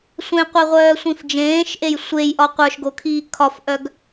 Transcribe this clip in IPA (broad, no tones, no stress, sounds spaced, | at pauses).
sʷ ẽ qʷ e ʁʷ œː sʷ ĩ f d͡ʒ ẽː ʃ ʔ e j sʷ e j ʔ ɒ qʷ ə˞ ʃ ɡ o kʰ iː kʰ ɒ f ʔ œ ɡ